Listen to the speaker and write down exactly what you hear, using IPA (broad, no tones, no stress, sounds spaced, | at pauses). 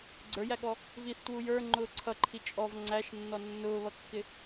ɡ͡ǀ ə˞ j æ ɠ ɔ | v i θ t w u j ə˞ ŋ͡ǃ ʊː ǀʰ ʌ ǃʰ i t͡ʃʼ ɔ v ŋ͡ǀ æ ʃ nː ɔ nː ʊː β ʌ kː ɪ